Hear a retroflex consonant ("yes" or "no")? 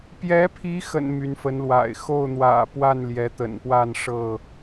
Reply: yes